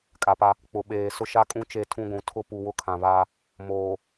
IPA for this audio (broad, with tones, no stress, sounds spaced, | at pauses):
kʼ a˨ p a˦ | k͡p ʊ˨ ɓ eː˨ s ʊ˦ ʃ a˦ kʼ ũ˦ t͡ʃ e˦˨ tʰ ũ˦ ɡʷ ũ˨ tʰ ʊ˦ p u˨ w ʊ˦ kʰ ã˨ β aː˦ | m oː˨